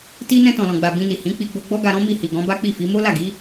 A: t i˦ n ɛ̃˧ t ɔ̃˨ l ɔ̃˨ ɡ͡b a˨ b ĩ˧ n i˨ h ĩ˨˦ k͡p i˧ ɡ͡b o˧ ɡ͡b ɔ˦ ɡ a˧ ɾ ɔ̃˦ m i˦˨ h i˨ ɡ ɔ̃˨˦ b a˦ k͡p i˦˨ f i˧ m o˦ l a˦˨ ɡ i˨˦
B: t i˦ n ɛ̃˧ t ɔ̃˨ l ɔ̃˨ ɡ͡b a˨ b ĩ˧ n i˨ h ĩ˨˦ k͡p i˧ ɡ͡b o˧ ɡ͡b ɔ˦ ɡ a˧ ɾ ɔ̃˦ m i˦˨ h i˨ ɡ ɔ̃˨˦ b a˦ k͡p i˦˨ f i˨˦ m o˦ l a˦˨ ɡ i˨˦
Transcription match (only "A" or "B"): B